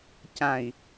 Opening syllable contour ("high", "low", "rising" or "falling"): low